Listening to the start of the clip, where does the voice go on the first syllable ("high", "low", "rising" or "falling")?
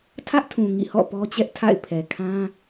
high